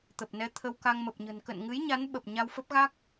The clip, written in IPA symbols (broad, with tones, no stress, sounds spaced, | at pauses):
t̪ ə˨˩ p̚ n ɛ˧ t̪ʰ ə˧ w k a˧ ŋ m ə˨˩ p̚ ɲ ə̤˨˩ n k ə̰˧˨ n ŋ ɨ˨˦ j ɲ a˨˦ n ɓ ə˨˩ p̚ ɲ a˧ w f ə˦˥ p̚ ɣ a˦˥ k̚